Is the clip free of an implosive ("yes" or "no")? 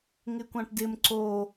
yes